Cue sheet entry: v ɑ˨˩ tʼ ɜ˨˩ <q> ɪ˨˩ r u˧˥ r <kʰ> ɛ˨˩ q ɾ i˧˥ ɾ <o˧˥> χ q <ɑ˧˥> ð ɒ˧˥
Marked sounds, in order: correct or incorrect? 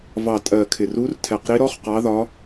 incorrect, incorrect, incorrect, correct

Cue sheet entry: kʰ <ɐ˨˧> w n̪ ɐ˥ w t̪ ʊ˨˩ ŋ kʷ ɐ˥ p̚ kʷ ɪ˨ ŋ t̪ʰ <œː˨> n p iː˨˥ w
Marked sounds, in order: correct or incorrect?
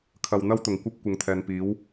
incorrect, incorrect

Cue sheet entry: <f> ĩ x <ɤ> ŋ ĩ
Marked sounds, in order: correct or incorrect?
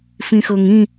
correct, correct

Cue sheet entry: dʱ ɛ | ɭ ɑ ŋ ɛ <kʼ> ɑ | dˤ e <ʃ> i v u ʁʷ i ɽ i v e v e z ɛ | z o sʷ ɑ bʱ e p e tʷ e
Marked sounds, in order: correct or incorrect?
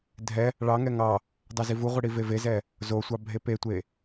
incorrect, incorrect

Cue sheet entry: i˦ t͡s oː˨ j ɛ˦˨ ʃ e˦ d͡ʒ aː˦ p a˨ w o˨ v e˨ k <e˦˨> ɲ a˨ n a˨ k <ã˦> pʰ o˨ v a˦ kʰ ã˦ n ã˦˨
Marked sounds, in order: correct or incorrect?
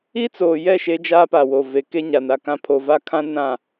incorrect, correct

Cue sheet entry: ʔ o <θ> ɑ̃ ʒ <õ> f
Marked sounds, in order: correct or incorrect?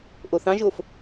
correct, incorrect

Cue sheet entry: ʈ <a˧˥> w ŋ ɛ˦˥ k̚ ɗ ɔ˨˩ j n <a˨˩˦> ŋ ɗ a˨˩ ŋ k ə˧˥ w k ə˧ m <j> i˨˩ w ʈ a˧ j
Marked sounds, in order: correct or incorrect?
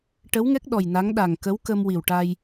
incorrect, incorrect, incorrect

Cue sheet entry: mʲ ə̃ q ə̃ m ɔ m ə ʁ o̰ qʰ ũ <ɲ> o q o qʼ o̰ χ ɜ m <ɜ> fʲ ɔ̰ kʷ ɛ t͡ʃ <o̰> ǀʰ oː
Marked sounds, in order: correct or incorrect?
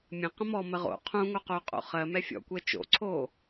incorrect, incorrect, correct

